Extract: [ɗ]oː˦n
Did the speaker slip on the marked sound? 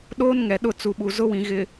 no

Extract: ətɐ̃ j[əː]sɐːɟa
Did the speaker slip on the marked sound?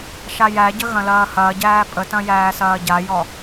yes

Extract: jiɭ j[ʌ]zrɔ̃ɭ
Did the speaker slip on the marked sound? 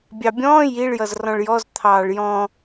no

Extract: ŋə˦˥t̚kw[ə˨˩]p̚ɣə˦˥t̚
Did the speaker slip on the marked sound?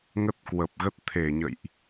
no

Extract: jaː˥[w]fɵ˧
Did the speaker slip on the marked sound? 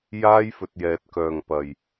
yes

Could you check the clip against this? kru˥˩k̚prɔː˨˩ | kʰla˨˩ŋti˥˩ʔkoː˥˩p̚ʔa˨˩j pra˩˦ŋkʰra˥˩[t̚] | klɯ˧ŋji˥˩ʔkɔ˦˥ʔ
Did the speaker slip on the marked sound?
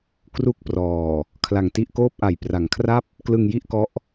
yes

